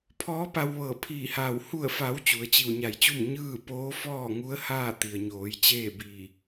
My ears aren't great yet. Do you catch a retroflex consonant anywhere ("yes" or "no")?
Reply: no